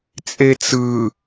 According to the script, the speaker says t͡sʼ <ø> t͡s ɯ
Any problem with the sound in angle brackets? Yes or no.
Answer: yes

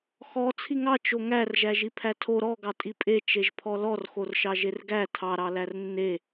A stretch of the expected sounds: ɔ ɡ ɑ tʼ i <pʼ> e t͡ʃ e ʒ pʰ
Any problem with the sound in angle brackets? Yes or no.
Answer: no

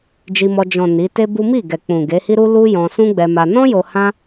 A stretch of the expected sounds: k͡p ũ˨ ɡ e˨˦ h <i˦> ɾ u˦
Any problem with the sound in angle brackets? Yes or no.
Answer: no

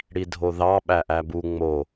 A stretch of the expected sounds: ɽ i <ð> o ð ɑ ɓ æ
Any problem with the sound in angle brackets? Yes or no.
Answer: yes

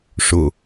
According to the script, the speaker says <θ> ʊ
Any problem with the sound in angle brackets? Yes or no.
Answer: yes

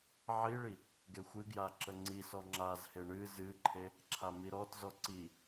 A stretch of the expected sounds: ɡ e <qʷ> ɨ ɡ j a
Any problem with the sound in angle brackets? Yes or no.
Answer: yes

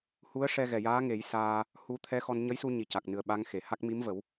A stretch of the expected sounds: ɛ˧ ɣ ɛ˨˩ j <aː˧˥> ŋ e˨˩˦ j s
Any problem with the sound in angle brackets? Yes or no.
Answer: no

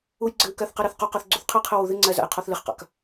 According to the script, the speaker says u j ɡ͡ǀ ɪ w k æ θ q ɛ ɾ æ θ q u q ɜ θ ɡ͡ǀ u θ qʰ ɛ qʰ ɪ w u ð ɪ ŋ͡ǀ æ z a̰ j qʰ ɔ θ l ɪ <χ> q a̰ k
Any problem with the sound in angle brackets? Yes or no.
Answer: no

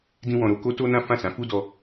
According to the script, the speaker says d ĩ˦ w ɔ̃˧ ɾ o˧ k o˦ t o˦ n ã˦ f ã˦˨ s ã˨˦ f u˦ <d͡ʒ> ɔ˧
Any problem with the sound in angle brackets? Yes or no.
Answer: yes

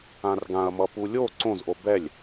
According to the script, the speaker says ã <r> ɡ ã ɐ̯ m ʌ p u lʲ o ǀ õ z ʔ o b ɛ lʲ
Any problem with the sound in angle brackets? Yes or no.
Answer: no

